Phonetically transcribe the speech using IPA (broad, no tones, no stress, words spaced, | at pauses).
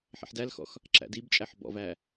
ħɛ̰ħdælxɔ̰x | ǁæ̰dibt͡ʃʼæħ bɔ̰væ